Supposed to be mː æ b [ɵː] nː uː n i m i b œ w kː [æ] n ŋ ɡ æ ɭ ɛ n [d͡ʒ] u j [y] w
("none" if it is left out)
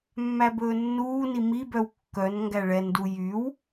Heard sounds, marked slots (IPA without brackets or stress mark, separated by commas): ɵː, œ, d, y